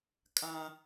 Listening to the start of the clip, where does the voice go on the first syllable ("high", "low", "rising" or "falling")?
high